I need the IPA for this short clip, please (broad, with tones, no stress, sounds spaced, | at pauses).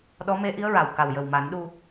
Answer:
ɗ ɔ˧˥ m e˧˥ ʔ i˧˥ ə̯ ɹ a˨˩ w k a˨˩ w j ə˨˩ w m a˨˩˦ n ɗ u˧